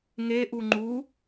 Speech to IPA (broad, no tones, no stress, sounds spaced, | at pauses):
ŋ e ʔ u ŋ͡ǃ u